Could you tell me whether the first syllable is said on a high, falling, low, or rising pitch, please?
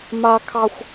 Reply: high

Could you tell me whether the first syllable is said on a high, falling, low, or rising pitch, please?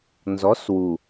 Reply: rising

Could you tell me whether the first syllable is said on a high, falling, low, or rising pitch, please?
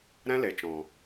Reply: high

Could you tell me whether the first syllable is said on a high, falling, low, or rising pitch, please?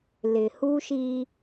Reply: low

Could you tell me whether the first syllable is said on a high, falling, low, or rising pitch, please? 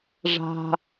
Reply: low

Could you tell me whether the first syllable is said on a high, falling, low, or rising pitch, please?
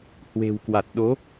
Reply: low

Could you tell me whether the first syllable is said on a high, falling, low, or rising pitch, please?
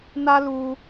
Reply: high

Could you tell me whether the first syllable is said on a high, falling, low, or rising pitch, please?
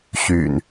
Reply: low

